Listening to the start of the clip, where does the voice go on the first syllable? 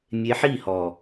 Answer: rising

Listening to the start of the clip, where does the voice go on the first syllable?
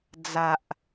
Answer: low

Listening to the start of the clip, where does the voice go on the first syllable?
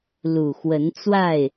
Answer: low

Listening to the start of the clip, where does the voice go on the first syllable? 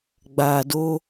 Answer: low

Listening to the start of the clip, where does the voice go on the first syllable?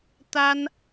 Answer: high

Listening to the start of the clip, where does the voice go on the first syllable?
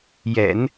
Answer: low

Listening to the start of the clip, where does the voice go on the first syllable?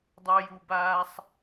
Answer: low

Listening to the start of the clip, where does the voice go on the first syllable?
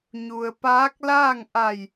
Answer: low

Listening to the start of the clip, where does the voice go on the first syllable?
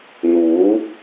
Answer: rising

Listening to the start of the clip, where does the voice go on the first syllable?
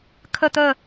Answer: falling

